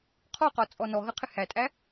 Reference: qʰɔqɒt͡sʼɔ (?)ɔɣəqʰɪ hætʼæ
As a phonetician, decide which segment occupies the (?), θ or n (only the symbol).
n